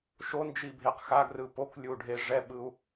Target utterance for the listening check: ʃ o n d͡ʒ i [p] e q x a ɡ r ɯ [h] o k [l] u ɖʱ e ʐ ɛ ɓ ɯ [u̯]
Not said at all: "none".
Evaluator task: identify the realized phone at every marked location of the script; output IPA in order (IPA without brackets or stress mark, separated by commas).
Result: bʱ, p, lʲ, u̯